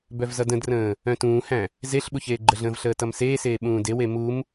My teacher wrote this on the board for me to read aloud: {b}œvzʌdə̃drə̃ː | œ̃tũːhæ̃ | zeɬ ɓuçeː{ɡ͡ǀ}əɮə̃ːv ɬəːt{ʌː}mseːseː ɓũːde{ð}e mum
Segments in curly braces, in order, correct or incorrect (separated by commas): correct, incorrect, incorrect, incorrect